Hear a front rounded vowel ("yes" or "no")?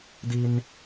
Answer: no